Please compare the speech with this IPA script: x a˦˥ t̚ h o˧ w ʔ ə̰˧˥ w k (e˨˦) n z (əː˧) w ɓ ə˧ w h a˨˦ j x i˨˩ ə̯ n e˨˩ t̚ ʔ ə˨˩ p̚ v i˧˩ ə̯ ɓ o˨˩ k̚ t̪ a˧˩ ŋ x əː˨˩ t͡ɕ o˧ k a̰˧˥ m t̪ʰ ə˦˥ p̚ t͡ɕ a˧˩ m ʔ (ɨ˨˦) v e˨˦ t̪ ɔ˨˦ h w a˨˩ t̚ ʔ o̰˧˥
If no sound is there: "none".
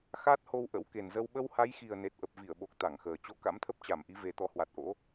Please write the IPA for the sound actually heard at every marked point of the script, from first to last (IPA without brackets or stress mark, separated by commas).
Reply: e˨˩, ə˧, i˨˦